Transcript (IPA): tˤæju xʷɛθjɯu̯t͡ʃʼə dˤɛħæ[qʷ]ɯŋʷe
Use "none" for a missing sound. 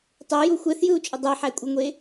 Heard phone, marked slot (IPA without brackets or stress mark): kʷʼ